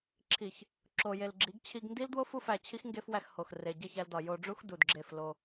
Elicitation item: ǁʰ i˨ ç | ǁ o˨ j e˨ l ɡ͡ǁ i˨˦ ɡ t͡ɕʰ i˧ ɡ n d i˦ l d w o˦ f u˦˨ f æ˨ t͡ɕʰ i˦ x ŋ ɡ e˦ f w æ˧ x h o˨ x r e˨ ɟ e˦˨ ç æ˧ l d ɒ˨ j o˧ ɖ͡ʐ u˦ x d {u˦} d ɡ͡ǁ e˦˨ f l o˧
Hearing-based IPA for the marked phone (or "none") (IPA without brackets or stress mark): u˨